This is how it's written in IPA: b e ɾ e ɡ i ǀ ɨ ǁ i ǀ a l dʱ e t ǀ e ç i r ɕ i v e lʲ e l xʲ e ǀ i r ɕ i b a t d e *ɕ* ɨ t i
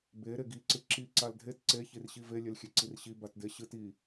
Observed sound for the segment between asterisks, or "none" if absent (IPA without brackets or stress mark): ɕ